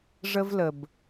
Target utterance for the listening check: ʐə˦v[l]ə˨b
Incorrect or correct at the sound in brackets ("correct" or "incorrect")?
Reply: correct